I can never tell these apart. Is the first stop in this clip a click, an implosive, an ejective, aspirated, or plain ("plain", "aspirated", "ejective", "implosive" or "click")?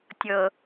plain